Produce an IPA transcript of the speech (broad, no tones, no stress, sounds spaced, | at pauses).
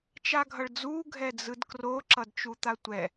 t͡ʃ a ɡʱ ʌ ɭ d͡z uː ɡʱ ɛ d͡z ɯ d k r o ǁ ʌ d t͡ʃ u t̪ a tʷ ɛ